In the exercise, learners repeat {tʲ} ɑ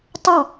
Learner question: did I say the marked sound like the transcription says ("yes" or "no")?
no